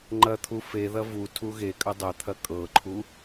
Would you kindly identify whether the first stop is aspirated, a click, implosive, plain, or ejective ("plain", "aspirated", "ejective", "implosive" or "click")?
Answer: click